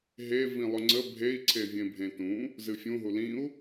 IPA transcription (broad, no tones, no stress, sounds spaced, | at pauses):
ɦ e v ĩ lˠ ʊ ŋ͡ǀ ə bʱ e i̯ ǀʰ e vʲ ẽ bʱ ẽ t ũ | z ɨ fʲ ũ ɦ u l ĩ u̯